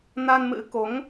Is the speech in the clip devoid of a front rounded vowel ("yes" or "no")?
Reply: yes